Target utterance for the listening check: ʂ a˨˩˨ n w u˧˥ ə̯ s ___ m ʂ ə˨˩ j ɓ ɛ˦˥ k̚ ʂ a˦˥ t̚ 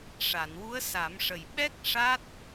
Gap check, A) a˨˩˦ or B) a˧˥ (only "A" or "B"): A